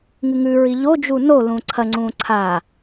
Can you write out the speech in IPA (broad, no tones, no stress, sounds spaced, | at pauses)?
ŋ ɨ ŋ ʉ ɹ i ʎ o d͡ʒ u n o l ũ ǀʰ ɐ ŋ͡ǀ ũ ǀʰ a